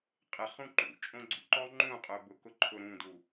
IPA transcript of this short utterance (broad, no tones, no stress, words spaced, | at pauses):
qʼɪχũ ǃṵ t͡ʃʼõɡ͡ǀṵǃɔ ŋ͡ǃũqʼʊ bʊkʊ ǃʰʊɾũdu